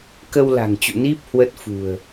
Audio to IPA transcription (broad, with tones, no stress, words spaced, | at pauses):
kə˧wla̤˨˩ŋt͡ɕṵ˧˨ ni˦˥p̚ hwə˦˥t̚fṳ˨˩ə̯